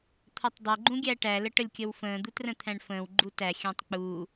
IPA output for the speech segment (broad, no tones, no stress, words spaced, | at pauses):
t̪ʰʌtˤdˤə ɡ͡ǃũɡʲæʈæ ləʈəlʲkʲəwfə̃ː d̪utrə̃t̪ʰæ̃ɳfə̃ːw ɡ͡ǃutæ xʲə̃ːtˤk͡puː